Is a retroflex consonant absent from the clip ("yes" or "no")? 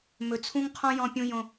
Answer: yes